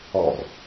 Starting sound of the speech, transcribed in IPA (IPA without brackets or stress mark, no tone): ɔ